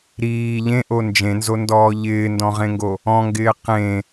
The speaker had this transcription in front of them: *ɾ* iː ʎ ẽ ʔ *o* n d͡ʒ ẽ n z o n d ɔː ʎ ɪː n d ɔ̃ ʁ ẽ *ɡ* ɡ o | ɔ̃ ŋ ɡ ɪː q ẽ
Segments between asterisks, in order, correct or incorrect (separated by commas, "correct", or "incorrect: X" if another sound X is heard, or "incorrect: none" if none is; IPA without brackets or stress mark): correct, correct, incorrect: ŋ